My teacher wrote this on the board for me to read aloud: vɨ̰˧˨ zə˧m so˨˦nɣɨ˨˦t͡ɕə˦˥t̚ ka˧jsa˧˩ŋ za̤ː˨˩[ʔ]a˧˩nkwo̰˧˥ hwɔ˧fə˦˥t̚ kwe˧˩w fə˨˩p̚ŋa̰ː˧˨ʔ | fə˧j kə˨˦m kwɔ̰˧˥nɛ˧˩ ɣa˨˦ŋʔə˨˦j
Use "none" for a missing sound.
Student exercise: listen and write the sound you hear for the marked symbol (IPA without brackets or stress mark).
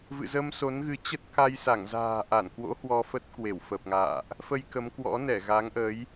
ʔ